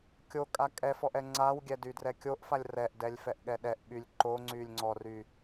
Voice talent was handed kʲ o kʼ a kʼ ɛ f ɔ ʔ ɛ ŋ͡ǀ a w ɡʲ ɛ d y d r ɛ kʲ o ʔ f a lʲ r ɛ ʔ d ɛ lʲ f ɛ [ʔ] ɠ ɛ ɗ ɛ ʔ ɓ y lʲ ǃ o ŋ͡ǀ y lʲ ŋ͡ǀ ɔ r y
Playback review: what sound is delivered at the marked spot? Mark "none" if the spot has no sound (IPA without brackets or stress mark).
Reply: ʔ